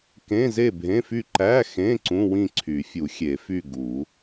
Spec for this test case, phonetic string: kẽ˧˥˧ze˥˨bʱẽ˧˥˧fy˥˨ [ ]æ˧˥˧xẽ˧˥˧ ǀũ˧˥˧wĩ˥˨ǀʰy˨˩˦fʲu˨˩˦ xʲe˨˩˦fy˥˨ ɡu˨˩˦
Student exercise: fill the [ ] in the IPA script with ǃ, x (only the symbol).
ǃ